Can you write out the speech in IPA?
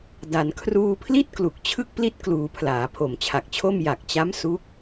da˩˦n kʰruː˧pʰli˥˩t̚klu˨˩k̚ t͡ɕʰɯ˥˩k̚pli˥˩t̚ kluː˩˦ pʰlaː˩˦pʰo˨˩mt͡ɕʰa˨˩k̚t͡ɕʰo˥˩m ja˨˩k̚t͡ɕa˦˥m su˦˥k̚

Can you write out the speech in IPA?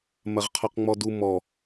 mɐʁqʰɔqŋ͡mɔdu mɔ

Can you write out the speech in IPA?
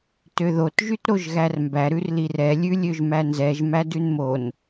tøðot ʒytɾoʒɣærmbæ ɾʉrlirɛ lʲʉlʲøʒmænzɛʒ mædʉnmon

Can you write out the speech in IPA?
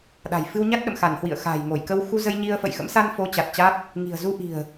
ɗa̤˨˩j fɨ˧wɲa˦˥t̚ ɗə̰˧˨mxa˧˩nhwḭ˧˨ə̯ xa̤˨˩j ŋo˧˩jkə˧w xu˧zə˧jɲi˧ə̯ fə̰˧˨jxə̰˧˥msa˧nfo˨˦ t͡ɕa˨˩t̚t͡ɕa˦˥t̚ | ŋi̤˨˩ə̯zu˧ʔi̤˨˩ə̯

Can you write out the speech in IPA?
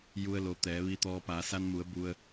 ju˧ə̯lo˩˧t̪ɛː˩˧ ʋi˧˥t̪ɔː˧ paː˩˧sa˧nmu˩˧ə̯ bu˧ə̯

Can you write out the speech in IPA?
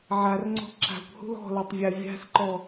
ʕarŋ͡ǀɔ̤ ǁa̤kʷhṳl ɔ̤latˤvʲa vʲa̤sǃɔ

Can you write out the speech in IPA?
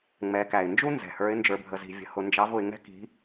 ŋ͡mɛ˩˧kæ˩ɪ̯nd͡ʒu˥ nzɛ̤˩ hə˞˧˥ɪ̯nd͡ʒə˞˧bʱə˧zi̤˧ vʲə̤˧ hʊ˧nd͡ʒɑ˧˥v ʊ˩˧ɪ̯ŋɛ̤˥ ki̤˧˥

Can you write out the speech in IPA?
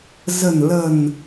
zə̤˨˩nlə̤˨˩n

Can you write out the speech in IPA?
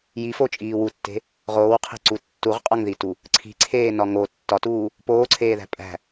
jifot͡ʃʼiː wutːe̤ | ʁoːwqʰe̤ǀu tːuʁqʼɒŋðitu | ǀʰi̤ǀʰeːnɒ ŋo tːɒtuː | poːǀʰeːðæ̤ pʼæ̤

